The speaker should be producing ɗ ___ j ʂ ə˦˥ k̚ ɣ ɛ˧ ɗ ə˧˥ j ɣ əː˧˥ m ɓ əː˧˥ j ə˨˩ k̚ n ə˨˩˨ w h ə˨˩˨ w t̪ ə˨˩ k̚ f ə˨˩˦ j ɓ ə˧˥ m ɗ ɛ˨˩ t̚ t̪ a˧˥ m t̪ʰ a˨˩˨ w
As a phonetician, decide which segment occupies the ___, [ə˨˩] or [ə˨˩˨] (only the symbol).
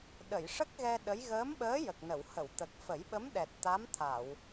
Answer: ə˨˩˨